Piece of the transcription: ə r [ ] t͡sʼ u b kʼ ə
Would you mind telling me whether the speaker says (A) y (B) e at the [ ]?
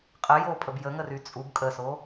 A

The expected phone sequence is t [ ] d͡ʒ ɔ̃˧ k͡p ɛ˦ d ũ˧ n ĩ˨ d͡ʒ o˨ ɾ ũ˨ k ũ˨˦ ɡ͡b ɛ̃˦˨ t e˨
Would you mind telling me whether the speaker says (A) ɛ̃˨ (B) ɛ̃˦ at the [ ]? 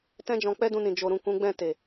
B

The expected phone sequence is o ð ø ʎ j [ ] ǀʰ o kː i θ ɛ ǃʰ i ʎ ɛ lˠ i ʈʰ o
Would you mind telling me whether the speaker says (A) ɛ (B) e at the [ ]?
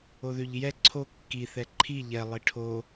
A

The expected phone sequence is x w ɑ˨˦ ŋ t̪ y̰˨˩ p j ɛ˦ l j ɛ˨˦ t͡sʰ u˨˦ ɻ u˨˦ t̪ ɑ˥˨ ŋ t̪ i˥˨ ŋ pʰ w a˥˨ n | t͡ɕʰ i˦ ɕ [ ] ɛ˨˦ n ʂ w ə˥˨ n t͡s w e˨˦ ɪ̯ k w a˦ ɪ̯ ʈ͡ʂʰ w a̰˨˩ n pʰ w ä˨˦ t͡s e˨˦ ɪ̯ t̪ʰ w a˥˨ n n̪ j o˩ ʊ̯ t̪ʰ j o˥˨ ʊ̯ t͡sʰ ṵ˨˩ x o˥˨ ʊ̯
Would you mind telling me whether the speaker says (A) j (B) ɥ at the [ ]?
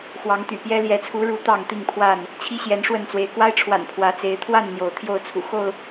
A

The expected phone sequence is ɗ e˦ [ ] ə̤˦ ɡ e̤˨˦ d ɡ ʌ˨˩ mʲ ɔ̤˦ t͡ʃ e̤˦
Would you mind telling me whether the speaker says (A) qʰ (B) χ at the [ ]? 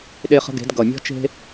B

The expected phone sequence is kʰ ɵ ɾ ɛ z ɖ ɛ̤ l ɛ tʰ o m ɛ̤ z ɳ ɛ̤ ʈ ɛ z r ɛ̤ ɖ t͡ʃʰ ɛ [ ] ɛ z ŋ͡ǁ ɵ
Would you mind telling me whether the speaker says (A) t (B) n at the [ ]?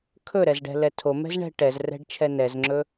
B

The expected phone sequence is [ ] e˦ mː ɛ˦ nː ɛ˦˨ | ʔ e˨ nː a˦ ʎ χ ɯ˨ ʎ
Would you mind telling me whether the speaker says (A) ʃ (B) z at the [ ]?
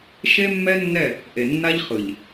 A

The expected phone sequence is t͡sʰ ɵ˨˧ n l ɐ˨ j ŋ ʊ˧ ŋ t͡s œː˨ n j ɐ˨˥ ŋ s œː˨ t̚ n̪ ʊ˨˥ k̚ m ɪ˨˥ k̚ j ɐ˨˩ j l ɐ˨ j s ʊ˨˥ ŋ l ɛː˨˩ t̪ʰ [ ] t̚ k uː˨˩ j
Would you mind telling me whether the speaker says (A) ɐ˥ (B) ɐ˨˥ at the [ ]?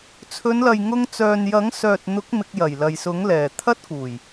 A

